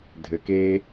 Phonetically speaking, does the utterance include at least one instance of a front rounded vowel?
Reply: no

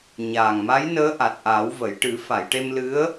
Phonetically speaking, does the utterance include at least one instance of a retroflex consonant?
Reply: yes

